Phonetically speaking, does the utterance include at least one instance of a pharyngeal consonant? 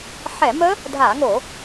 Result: yes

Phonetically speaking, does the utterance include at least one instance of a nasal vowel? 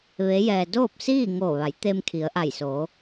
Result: no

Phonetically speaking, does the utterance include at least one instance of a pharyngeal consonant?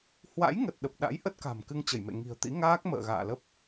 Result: no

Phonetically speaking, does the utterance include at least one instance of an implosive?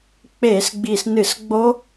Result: no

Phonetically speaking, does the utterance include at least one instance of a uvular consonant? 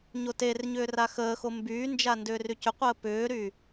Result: yes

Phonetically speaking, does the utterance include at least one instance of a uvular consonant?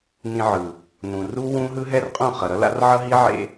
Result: yes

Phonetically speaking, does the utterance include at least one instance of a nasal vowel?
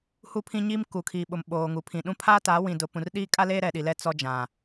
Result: yes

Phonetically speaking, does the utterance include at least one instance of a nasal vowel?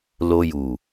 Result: no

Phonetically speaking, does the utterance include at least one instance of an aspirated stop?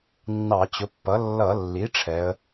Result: yes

